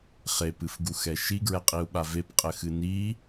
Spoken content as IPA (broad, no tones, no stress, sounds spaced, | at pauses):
χ e p ɨ f ɡ u x ɛ ʃ i ɡ ɹ ɛ qʼ i u̯ ɓ a v e p qʼ ɘ x ɨ n i